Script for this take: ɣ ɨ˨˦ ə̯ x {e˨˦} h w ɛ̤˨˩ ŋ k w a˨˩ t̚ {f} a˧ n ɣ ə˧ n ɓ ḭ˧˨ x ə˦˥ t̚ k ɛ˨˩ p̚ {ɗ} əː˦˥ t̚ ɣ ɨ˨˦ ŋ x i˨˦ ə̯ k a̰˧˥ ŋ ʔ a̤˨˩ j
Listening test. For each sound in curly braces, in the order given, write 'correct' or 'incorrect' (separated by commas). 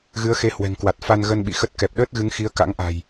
correct, correct, correct